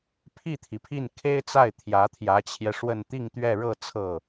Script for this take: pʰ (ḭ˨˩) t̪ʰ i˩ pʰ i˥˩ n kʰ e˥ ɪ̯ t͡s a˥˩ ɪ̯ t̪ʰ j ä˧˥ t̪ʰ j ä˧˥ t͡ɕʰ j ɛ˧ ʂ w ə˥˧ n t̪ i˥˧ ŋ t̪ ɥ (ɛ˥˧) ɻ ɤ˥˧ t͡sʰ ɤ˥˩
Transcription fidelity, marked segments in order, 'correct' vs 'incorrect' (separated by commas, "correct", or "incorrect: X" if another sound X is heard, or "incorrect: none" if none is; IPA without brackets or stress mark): incorrect: i˥˩, correct